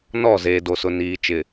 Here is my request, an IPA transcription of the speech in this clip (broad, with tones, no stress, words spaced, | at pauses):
nɔ˦˨ zeː˨do˨sʊ˨ niː˨t͡ʃɪ˨